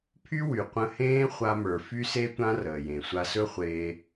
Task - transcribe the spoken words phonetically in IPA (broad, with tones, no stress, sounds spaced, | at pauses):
pʰ y˦ w y˨ qʷ ə̃˧ h ẽː˦ χʷ a˧ m ə˞˨ f y˦ s e˦ tʷ ã˦ r əː˨ j ẽ˨ sʷ a˧ s ɵ˦ χʷ eː˧